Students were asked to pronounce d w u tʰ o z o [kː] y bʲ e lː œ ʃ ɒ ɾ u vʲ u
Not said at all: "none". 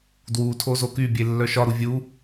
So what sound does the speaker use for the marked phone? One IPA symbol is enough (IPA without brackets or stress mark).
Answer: k